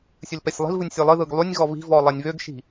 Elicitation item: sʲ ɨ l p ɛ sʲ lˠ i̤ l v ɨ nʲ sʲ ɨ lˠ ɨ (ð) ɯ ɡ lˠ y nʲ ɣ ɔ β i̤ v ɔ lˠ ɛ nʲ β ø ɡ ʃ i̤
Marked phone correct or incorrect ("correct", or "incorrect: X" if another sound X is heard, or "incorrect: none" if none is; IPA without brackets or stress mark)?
correct